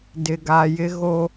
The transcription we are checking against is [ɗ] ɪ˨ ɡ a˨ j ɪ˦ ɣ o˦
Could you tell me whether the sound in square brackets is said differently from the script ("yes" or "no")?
yes